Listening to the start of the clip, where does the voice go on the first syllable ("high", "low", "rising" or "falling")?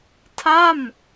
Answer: falling